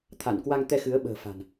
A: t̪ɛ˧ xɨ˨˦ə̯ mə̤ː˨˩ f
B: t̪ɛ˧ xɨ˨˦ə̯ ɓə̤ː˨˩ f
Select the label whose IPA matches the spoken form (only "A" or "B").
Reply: B